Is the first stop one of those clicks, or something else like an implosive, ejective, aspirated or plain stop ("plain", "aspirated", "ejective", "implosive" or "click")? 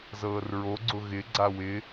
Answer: click